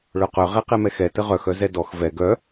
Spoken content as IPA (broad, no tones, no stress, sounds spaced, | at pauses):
ɭ œ q œ ʁ ɛ q ɛ m ɛ x ɛ t ə ʁ œ x œ z ɛ d ɔ x v ɛ ɡ œ